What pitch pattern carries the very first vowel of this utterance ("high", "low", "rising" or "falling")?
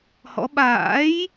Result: rising